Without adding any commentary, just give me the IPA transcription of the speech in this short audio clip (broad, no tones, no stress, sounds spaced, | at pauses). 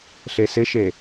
ɬ e s ɪ ʃ e